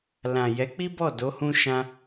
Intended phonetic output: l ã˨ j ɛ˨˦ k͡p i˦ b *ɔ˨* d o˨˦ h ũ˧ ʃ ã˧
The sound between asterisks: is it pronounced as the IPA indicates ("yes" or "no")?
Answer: no